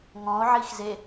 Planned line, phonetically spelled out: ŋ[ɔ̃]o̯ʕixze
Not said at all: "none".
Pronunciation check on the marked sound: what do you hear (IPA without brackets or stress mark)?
ɔ̃